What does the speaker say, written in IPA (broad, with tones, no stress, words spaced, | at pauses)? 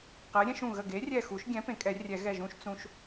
qɛ˨˥ɾʲɛ̃˦ʃũ˧˩ ɣə˧˩ɡe˨˥rʲɛ˧˩xu˨˩˦ʃ ɡʲɛ̃˨˥ pẽ˨˩˦kʼɛ˨˩˦ rʲɛ˨˩˦ɣɛ˧˩ ʒũ˦ʃ t͡sũ˦ʃ